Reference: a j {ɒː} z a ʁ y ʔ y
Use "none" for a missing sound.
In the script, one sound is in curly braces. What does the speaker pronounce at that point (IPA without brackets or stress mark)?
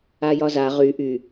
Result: ɒ